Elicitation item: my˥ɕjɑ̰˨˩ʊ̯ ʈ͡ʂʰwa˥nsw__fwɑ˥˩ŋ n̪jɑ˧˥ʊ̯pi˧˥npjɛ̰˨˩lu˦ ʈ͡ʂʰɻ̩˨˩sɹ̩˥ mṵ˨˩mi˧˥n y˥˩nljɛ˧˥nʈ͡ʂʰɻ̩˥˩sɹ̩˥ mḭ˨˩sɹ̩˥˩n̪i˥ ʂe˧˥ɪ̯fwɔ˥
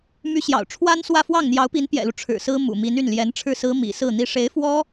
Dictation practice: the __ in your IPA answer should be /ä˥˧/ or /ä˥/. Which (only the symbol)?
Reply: ä˥˧